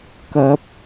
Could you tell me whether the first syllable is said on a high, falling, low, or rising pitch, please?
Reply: rising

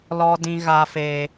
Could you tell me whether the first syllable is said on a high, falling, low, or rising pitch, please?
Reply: high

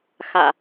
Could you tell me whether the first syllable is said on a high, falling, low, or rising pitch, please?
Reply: low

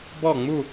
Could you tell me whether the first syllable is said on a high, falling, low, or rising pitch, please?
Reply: falling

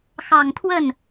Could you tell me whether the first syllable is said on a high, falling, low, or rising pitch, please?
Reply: low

